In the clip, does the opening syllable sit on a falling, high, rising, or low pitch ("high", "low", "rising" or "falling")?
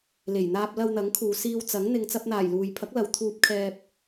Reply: low